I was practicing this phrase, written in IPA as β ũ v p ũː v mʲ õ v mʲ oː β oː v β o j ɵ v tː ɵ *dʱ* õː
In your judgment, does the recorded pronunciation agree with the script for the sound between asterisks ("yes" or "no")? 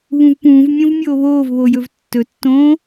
no